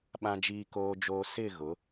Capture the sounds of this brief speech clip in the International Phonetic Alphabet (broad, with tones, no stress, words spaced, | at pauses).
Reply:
ɓã˨d͡ʒiː˨koː˨d͡ʒoː˨ sɪ˦˨ ɣʊ˨˦